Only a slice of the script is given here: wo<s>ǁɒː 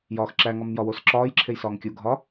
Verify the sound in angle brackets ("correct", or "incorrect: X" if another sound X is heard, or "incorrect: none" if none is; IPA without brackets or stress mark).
correct